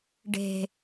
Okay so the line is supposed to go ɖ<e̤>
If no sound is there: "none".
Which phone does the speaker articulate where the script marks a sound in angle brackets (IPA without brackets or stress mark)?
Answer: e̤